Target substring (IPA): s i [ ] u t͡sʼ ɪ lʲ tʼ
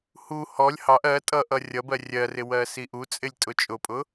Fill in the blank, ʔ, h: ʔ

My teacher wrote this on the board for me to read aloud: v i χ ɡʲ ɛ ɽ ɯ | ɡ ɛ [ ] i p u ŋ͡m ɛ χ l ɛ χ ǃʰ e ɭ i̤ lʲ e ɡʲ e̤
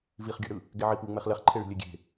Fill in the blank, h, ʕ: ʕ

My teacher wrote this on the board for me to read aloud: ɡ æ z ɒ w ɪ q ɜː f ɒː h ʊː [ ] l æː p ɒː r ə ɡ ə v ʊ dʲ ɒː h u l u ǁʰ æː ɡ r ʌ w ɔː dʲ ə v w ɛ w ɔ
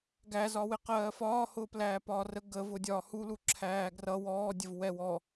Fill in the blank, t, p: p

